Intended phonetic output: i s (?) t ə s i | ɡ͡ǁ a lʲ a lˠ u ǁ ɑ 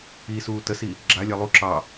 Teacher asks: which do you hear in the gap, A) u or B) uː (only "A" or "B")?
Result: B